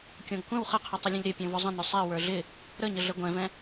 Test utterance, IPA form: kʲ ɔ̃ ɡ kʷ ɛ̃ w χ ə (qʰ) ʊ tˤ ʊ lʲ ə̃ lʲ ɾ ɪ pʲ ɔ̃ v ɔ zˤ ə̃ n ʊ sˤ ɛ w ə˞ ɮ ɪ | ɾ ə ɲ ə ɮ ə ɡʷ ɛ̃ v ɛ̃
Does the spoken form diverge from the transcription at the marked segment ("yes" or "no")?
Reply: no